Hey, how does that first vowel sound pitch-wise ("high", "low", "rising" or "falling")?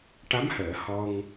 rising